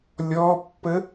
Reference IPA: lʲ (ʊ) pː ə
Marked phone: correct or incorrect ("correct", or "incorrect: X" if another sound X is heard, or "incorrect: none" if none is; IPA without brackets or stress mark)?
incorrect: ɔ